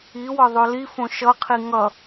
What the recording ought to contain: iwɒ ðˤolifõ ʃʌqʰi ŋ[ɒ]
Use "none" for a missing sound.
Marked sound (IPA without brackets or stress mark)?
ʌ